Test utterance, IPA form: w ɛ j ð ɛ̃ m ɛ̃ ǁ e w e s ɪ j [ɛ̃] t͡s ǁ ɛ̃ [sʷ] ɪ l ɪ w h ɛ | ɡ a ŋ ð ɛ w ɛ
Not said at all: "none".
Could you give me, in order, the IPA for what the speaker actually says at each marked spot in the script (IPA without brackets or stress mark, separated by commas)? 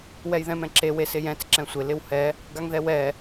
ɛ̃, sʷ